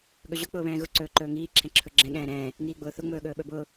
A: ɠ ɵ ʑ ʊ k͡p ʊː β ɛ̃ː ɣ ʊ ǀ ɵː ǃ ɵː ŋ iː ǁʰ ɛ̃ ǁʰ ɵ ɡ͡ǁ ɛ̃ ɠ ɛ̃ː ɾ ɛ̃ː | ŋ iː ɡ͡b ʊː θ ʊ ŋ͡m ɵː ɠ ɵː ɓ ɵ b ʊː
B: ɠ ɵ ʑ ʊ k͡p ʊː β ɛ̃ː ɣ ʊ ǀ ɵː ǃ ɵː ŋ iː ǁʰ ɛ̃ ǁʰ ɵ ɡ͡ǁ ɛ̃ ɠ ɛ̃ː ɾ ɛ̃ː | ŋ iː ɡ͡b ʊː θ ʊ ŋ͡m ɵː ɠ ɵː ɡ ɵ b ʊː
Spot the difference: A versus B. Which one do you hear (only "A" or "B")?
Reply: A